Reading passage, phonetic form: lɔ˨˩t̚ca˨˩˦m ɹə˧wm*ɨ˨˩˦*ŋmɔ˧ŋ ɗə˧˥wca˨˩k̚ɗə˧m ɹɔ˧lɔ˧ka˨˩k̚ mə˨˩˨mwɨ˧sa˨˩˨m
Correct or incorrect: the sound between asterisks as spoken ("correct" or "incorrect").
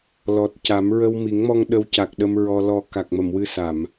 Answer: incorrect